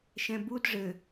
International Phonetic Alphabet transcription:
ʃ ɛ̃ b u d ʐ ɘ

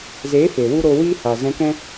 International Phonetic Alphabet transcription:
z eː˨˦ f e˨ w u˦ ɾ o˧ w iː˦ h a˨ z ɛ̃˧ k ɛ̃˦

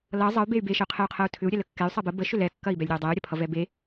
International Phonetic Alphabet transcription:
l ʌ zˤ ʌ y̯ b e y̯ b e ʃ ə y̯ qʰ ɛ y̯ qʰ ɜ u̯ tʰ ʏ u̯ ɾʲ ɛ l ə kː ɛ y̯ sˤ ɜ b ə b ə ʃ ʏ l ɛ kː ɐ i̯ b ɛ lʲ ɾʲ ɐ y̯ dˤ ɛ y̯ ɾʲ ɐ pʰ ʌ v ɛ b e

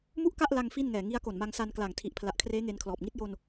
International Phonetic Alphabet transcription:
m u˥˩ ʔ k a˥˩ ʔ l a˧ ŋ f i˥˩ n ŋ ɛː˨˩ ŋ i˦˥ a̯ k o˨˩ n m a˧ ŋ s a˧ n k l aː˨˩ ŋ tʰ i˨˩ ʔ pʰ l a˨˩ ʔ kʰ r eː˦˥ ŋ e˧ n kʰ l ɔː˨˩ p̚ ŋ i˦˥ t̚ j o˧ n

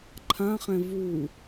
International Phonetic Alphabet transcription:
ǃʰ ã χ ɛ̃ v u

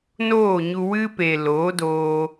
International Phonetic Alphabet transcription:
n oː˦˨ ɲ u˧ w ɨ˧ p e˨ l oː˨˦ d oː˧

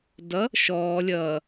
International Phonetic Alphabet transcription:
d ʌ | ʃ ɔː lʲ ʌː

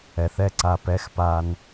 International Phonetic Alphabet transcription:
ɛ˨ θ ɛ˦ ǀ a˧ p ɛ˧ x p a˧ n

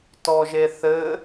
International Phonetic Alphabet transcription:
t ɔ ʒ e θ ɘ

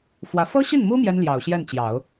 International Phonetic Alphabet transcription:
f w ä˧˥ f ɤ˥ ɕ i˥˩ n m u˥ m j ɛ˥ n l j ɑ˨˩ ʊ̯ ɕ j ɛ˥˩ n t͡ɕ j ɑ˨˩˦ ʊ̯

